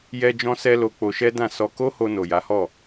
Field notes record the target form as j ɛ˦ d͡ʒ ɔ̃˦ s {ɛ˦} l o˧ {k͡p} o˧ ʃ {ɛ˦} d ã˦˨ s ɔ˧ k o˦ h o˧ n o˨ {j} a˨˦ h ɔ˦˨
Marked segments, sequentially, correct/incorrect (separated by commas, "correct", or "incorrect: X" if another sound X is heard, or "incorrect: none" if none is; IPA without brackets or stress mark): correct, correct, correct, correct